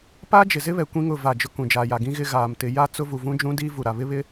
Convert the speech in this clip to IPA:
p a˦ d͡ʒ ɪ˨ z ɪ˦ β ɛ˨ kʷ ĩ˦ ŋ ʊ˦˨ v a˦˨ d͡ʒ ʊ˦ k ũ˨ d͡ʒ aː˨ j a˨ ɡ ĩ˦ ɣ ɪ˦ ɣ aː˨ m t ɪ˨ j a˦ t͡s ʊ˦ v u˨ v ũ˦ d͡ʒ ũ˦ d iː˦ v u˨ ɾ a˨ β ɪ˦ β ɪ˦

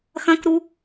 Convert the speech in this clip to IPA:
x ɐ̃ k ɾ u

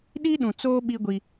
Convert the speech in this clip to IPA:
ɗ i˦ ɗ ũ˨ t͡s oː˦ ɓ i˦ ɡʷ i˦

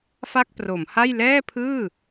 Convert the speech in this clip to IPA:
f a˥˩ k̚ p r o˩˦ m h a˥˩ j l ɛː˥˩ pʰ ɯː˥˩

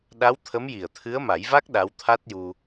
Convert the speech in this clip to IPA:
ɗ a˧˥ w t̪ʰ ə˧˥ m j i˨˩ ə̯ t̪ʰ ɨ˧˥ ə̯ m a˨˩˦ j v a˦˥ k̚ ɗ a˧˥ w t̪ʰ a˦˥ t̚ j u˧

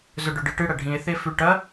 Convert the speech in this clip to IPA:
z ɵ ɖ ɵ ɖ ɨ ʈ ɨ ɽ ɐ ɖʱ ĩ e̯ θ e f ʉ ʈ ɐ

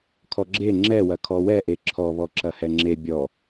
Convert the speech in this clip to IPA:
kʰ ɔ ɡ͡ǁ e ŋ͡ǁ ɛ w ɐ kʰ ɔ w ɛ ʔ e ǁʰ ɔ β ɔ ǁ ɐ h ɛ ŋ͡ǁ e bʲ ɔ

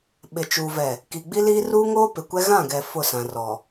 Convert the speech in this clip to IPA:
ɓ ɪ˨ t͡ʃ uː˨ v ɛ˨ | k i˨ ɡ͡b i˦ l iː˦ r uː˦ ŋ oː˦ p ɪ˨ kʷ ɛ˦ ɣ ã˦˨ ɡ ɛ˨ f ʊ˦˨ s ã˨ r ɔ˨

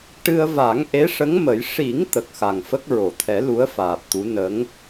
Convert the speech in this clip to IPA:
ʈ ɨ˧ ə̯ v a˨˩˦ ŋ ʔ e˧˥ ʂ ə˧˥ ŋ m ə˨˩˦ j ʂ i˨˩˦ ŋ t̪ ə˨˩ k̚ x a˨˩ ŋ f ə˦˥ k̚ ɹ o˨˩˨ t̪ʰ ɛ˨˩˦ l u˧˥ ə̯ f aː˨˩ p̚ t̪ u˧˥ n ə˧˥ ŋ

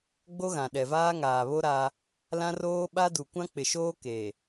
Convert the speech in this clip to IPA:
ɡ͡b o˦ ɣ ã˨ ɗ ɛ˨ v aː˦ ŋ aː˨ β o˦ ɾ a˦ | l ã˦ r oː˦ ɓ a˦ d u˨ kʷ ã˦ k͡p ɪ˨ ʃ oː˦ k e˨

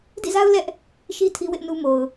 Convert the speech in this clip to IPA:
d ḭ˦˨ z a˦ ʊ̯ l ɛ˦ ʔ | ʃ i˦ tʰ i˦ w ɪ˦ ʔ n u˦ m o˨ ʊ̯

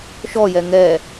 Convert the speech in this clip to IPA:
ʃ ɔ j ɛ ŋ ɛ

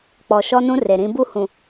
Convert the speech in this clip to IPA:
k͡p ɔ˨ ʃ ɔ˦ n ũ˦ r e˨ ɾ ĩ˦ b u˦ h ũ˨

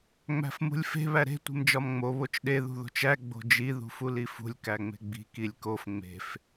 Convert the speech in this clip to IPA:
ŋ͡m æ̤ f m ṳ lʲ f e̤ β æ ɾ e̤ tʷ e̤ m d͡ʒ ɒ m ŋ͡m o β o t͡ʃ ɗ e ð ṳ ð o̤ t͡ʃ æ ɡ͡b o̤ d͡ʒ i ð ṳ f u l i f ṳ lʲ k æ ŋ͡m e̤ ɡ͡b i̤ k i lʲ k o f ŋ͡m e̤ f

